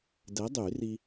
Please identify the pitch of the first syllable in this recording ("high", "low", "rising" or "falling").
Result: rising